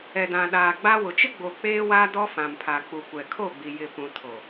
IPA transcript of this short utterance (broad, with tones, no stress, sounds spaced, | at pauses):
ɛ˨ d ã˨ ɗ aː˨ ɡ͡b a˦ w ʊ˨ t͡ʃ ɪ˦ ɡ͡b o˨ k͡p eː˦ w aː˦ d ɔ˦ f ã˨ m pʰ a˨ k͡p u˨ kʷ ɛ˨ kʰ o˦˨ ɡ͡b i˨ j ɪ˨ p ũ˨ tʰ o˨